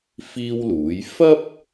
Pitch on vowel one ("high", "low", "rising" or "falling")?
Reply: high